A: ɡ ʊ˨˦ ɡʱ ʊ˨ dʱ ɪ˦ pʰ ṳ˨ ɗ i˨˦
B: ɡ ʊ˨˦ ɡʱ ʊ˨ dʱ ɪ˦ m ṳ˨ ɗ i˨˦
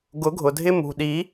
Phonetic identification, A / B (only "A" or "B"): B